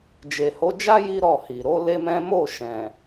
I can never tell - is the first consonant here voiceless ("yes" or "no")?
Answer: no